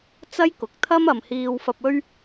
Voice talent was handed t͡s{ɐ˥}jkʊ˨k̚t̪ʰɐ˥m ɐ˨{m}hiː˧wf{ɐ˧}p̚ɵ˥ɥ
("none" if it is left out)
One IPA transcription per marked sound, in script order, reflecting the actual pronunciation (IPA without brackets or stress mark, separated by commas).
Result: ɐ˥, m, ɐ˧